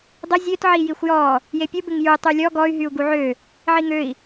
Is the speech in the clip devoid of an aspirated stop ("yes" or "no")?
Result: yes